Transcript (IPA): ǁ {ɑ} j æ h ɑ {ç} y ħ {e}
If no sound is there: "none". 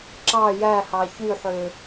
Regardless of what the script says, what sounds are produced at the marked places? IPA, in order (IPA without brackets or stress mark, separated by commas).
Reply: ɑ, ç, ø